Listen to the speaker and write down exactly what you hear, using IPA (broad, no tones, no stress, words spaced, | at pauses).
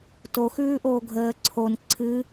to xʉːʔoːɡʱəː ǀʰon ǀʰɨ